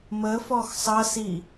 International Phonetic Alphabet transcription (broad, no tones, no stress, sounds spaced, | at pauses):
m ə f ɔ x sˤ ʌ s i